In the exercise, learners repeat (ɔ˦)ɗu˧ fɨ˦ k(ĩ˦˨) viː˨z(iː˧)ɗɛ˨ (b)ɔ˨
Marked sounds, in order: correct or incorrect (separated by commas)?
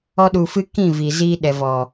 correct, correct, correct, incorrect